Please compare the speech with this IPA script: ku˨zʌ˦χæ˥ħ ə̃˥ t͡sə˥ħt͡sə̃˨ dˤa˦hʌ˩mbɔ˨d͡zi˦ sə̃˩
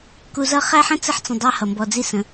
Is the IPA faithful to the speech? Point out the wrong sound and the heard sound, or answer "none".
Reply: none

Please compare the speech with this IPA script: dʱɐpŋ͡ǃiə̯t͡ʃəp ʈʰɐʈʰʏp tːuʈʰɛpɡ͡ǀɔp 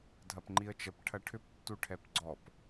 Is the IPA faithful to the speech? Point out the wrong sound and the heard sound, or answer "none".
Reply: none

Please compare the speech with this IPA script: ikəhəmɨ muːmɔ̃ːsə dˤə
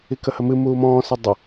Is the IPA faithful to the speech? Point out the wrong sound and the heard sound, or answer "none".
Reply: none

